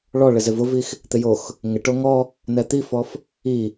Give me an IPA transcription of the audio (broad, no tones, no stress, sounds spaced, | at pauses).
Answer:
ɭ ɔ ɭ ɪ z ɪ v ʊ v i x | t̪ ɪ j o x | ŋ ɪ ʈ o ŋ ɔ | n ɛ t̪ i f ɔ f | i